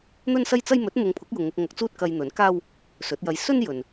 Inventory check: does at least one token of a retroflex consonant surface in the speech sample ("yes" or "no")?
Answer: no